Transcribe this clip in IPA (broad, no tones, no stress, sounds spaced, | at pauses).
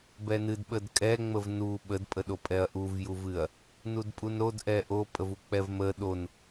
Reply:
b ɛ n ɨ d ɓ ə d kʼ ɛ ŋ͡m ə v n u ɓ ə d pʼ ə ɗ o pʼ ɛ ɐ̯ ʔ u v j u v ɨ ɐ̯ | n u d pʼ u n ɾ o d ʔ ɛ ʔ o pʼ ə v u k͡p ɛ v m ə ɗ o n